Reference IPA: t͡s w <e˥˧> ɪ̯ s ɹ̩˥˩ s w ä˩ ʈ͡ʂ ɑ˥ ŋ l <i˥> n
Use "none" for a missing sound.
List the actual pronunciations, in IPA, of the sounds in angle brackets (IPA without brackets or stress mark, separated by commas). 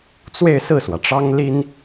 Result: e˥˧, i˥